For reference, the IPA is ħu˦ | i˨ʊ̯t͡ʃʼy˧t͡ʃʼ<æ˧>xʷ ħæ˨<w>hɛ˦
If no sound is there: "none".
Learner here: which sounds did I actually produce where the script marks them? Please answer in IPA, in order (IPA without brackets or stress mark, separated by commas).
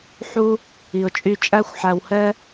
æ˦, w